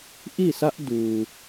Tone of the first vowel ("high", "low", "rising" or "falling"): falling